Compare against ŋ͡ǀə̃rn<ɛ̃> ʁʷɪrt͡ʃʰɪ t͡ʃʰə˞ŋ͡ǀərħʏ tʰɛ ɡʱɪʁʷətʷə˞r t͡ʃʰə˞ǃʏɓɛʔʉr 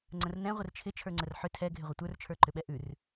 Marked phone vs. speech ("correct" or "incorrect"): correct